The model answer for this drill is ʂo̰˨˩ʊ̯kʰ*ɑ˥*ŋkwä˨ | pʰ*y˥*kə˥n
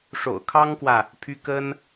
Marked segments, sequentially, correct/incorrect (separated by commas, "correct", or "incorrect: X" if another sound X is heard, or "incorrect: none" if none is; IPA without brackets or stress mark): correct, correct